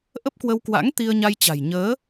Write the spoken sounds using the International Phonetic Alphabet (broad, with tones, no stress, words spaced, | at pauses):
ʔə˦˥p̚kwə˧wkwa̰˧˥ŋ t̪i˧ə̯ɲa˧jt͡ɕa̤˨˩j ɲəː˨˦